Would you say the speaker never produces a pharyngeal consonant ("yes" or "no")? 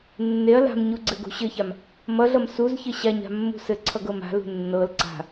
yes